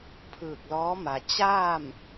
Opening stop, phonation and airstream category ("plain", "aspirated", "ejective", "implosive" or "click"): aspirated